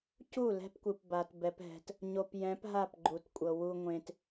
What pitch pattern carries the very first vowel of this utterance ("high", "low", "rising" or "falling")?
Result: falling